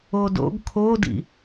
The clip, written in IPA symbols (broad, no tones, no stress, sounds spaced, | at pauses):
o d o̰ ɡ kʰ o d ḭ